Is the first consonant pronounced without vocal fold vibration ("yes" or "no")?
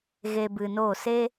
no